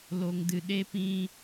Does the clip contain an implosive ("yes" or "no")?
yes